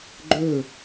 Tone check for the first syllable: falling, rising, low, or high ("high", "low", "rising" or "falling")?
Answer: falling